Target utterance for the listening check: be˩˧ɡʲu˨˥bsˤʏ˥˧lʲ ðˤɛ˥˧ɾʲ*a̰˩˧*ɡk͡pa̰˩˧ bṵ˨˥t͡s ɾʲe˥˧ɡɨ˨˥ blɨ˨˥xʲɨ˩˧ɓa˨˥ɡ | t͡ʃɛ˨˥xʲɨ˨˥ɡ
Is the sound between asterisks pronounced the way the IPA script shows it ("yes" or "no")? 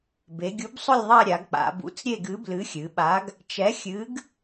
no